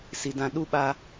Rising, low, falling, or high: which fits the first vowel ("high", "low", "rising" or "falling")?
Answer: low